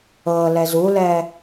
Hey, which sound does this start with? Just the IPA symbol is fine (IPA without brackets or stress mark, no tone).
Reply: ɤ